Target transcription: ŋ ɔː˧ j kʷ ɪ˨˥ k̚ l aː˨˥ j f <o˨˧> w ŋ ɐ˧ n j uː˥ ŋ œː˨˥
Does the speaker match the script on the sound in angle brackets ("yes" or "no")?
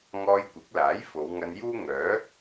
yes